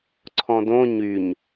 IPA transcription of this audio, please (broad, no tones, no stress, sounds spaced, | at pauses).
ǀʰ ɔ̃ d õ ɲ y ɲ